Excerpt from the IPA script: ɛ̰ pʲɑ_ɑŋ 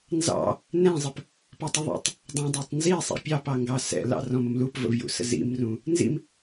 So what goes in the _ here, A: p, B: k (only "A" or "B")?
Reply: A